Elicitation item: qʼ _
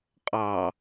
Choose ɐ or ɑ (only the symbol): ɑ